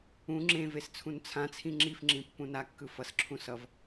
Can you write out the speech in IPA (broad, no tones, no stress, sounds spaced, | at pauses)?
ũ ŋ͡ǁ ẽ v e s t͡sʰ ũ n t͡sʰ ã t͡sʰ ĩ ŋ͡ǁ i f ŋ͡ǁ ĩ pː ũ n a kː ɯ f ʌ s ǁʰ ũ s ʌ v